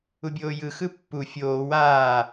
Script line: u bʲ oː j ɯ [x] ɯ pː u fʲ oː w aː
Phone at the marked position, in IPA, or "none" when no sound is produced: x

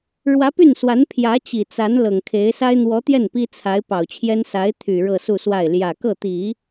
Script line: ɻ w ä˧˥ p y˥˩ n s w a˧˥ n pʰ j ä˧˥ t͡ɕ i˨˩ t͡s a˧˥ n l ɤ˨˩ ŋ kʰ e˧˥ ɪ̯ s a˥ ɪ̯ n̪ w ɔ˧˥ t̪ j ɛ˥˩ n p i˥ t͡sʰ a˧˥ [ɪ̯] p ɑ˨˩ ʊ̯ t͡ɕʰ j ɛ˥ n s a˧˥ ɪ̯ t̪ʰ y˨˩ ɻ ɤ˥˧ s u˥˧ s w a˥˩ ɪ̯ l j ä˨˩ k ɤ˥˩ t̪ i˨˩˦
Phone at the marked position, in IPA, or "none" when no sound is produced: ɪ̯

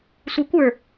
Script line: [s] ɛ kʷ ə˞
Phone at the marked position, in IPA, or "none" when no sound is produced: sʷ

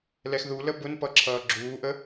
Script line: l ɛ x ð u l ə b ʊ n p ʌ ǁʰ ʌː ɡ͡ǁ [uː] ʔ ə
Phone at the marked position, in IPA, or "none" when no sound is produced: uː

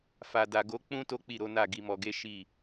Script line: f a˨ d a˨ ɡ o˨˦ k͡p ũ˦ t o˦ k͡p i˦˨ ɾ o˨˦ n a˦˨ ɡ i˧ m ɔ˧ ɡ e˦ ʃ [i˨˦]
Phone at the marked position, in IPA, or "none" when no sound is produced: i˦˨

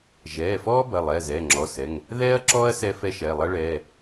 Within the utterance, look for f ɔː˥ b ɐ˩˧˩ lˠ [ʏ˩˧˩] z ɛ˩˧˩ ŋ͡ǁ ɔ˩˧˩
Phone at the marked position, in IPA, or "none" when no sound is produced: ɛ˩˧˩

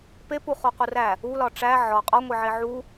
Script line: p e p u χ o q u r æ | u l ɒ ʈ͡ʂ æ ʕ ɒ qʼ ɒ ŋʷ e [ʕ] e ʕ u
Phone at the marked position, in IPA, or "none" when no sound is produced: ʕ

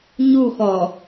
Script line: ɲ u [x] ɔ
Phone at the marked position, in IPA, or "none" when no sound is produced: x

